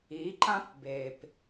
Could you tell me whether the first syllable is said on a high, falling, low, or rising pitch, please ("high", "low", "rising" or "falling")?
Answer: rising